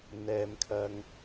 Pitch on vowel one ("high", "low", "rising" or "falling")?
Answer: low